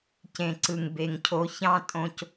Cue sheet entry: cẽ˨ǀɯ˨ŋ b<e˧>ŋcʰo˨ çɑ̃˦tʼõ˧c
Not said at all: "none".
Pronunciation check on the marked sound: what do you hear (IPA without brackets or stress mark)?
e˨